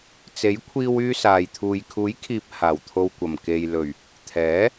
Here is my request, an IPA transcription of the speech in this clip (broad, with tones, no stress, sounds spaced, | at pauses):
t͡s e˨˥ j kʷʰ iː˧ w yː˧ s aː˨ j t̪ʰ uː˨ j kʰ uː˨˥ j kʰ iː˨ p̚ h aː˨˩ w t̪ʰ o˨ w kʷ ɐ˨˩ m k e˨ j l ɵ˨˩ ɥ | t̪ʰ ɛː˨˥